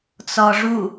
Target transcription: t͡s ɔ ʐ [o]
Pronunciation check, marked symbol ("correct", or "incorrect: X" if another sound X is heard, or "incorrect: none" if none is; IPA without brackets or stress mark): incorrect: u